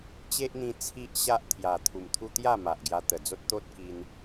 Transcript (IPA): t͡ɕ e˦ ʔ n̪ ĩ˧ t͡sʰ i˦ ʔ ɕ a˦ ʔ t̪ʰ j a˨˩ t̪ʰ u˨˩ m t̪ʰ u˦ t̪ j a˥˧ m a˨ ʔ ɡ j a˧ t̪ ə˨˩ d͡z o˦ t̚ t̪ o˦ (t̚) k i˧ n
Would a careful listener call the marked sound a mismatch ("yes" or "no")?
no